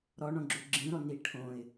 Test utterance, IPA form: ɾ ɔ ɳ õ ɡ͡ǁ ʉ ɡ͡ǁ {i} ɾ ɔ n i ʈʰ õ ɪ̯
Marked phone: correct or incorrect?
incorrect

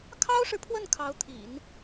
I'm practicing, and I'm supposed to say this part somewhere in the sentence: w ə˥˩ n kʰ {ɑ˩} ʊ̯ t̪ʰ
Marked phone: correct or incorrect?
incorrect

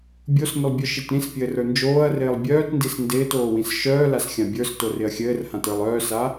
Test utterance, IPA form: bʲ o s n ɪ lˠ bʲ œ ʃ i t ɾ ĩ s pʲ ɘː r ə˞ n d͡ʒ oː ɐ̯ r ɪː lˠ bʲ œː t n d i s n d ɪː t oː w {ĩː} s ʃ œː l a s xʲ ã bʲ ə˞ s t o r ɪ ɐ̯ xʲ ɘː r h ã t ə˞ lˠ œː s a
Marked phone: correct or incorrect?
incorrect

